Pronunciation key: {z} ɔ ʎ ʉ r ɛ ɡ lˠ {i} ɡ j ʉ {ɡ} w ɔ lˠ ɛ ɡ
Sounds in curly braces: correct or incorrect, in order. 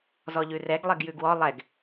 correct, incorrect, correct

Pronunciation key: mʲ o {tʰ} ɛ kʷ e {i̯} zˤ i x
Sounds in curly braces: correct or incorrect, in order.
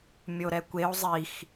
incorrect, incorrect

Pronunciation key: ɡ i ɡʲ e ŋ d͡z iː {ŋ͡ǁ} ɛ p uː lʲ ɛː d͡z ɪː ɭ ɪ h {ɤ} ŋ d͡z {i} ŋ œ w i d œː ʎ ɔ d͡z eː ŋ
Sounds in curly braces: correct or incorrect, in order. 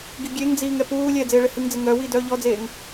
incorrect, incorrect, incorrect

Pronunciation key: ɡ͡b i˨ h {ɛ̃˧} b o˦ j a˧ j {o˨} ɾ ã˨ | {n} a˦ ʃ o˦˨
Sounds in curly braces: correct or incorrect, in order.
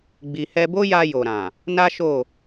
incorrect, correct, correct

